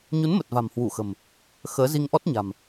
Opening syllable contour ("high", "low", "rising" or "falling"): rising